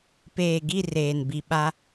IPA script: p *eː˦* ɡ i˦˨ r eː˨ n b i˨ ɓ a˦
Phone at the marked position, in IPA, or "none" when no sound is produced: eː˨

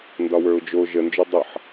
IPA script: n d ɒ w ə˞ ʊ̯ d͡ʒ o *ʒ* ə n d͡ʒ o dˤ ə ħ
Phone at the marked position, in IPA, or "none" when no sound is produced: ʒ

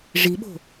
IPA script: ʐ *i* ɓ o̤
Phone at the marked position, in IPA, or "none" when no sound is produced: i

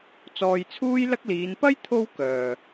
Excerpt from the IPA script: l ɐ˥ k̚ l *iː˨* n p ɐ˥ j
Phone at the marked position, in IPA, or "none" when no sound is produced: iː˨˧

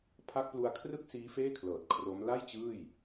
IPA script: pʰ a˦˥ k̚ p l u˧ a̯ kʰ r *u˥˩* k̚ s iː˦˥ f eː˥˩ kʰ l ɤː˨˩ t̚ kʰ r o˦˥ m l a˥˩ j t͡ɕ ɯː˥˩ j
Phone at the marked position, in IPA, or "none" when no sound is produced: ɯ˥˩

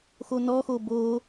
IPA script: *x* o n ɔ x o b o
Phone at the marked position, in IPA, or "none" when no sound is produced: x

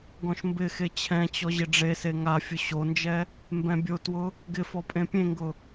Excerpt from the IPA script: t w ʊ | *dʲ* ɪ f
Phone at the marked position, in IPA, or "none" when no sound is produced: ɡ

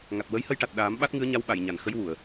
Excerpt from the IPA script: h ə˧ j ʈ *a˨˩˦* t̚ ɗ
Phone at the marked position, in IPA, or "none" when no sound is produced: a˨˩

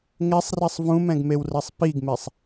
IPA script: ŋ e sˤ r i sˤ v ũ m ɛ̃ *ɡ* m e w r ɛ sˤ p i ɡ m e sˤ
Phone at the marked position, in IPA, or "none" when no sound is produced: ɡ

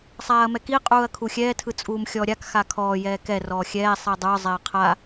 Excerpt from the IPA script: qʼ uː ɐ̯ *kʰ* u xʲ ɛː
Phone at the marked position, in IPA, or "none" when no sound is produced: kʰ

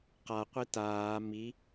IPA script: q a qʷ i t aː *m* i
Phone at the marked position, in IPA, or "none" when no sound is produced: m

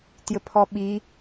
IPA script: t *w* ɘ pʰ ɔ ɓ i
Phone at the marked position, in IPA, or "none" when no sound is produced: j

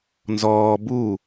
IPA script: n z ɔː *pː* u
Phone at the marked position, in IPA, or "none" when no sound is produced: b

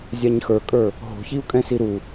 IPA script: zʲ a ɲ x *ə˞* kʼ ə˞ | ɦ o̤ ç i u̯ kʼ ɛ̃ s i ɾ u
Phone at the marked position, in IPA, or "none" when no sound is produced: ə˞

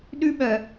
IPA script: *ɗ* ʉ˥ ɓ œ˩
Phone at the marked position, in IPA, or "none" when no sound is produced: ɗ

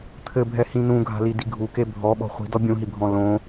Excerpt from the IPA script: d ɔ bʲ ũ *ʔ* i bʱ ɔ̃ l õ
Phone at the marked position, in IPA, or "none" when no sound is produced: ɦ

